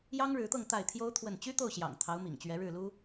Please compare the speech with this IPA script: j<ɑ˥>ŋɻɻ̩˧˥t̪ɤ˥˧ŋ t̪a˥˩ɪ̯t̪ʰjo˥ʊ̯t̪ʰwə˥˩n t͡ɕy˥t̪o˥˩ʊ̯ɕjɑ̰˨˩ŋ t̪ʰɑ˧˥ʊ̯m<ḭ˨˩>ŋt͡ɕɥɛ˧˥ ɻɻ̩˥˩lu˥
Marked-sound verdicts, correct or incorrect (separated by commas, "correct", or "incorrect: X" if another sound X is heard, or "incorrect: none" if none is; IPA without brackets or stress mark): correct, correct